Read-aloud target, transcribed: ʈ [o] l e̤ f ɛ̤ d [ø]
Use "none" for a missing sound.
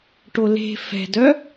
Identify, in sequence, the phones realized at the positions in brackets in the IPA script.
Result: o, œ

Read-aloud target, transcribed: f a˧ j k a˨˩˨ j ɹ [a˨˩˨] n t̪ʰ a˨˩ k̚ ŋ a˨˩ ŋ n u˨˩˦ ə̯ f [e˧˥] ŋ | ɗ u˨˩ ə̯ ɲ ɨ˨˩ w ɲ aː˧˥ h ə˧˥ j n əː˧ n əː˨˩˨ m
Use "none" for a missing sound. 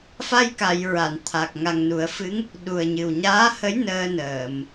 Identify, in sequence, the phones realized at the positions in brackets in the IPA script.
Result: a˨˩˨, ɨ˧˥

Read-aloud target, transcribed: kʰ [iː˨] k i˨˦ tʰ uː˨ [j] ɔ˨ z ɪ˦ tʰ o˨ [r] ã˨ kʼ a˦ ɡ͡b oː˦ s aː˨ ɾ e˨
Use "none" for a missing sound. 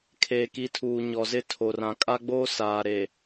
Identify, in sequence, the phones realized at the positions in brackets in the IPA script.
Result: eː˨, ɲ, r

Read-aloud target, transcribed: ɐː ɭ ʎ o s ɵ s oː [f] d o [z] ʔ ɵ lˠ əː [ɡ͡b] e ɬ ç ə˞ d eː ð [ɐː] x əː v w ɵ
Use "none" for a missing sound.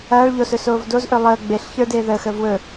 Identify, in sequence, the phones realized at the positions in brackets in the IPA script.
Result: v, z, ɡ͡b, əː

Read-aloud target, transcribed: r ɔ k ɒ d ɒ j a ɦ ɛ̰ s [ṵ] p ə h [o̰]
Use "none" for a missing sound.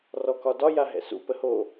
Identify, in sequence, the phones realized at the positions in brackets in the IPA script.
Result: ṵ, o

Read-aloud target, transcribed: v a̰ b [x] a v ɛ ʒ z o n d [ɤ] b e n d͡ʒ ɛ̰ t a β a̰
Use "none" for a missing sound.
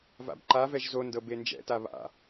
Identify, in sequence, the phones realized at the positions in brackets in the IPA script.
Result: ǃ, ɤ

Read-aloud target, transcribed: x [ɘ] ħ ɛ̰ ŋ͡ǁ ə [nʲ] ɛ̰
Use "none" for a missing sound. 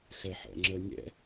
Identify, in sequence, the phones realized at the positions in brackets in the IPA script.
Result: ɛ, nʲ

